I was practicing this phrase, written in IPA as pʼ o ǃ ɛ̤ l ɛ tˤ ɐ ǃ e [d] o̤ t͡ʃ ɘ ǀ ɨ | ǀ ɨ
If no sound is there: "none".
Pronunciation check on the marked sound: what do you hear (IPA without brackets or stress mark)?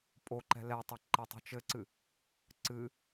tˤ